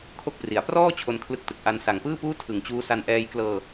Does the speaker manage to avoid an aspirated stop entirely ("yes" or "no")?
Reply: no